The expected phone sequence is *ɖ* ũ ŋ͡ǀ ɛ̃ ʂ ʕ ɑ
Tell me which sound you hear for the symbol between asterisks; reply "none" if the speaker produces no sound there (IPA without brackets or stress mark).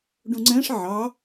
ɖ